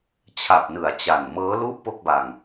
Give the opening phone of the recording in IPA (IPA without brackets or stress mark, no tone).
t͡ɕʰ